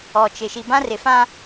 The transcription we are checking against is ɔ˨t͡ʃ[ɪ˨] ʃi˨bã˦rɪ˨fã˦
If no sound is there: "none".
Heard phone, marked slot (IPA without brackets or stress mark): ɪ˨